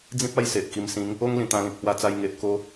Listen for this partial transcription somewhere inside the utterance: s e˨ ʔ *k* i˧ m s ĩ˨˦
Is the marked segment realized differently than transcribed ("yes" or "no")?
no